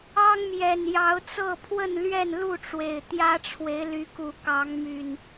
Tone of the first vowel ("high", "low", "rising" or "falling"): high